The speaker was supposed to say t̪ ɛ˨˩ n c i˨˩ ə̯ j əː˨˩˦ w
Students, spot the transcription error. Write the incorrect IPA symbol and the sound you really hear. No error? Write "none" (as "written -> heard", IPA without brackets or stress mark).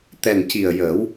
none